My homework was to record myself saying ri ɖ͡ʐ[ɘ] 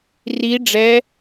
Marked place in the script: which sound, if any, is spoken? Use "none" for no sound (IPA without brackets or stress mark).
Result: ɛ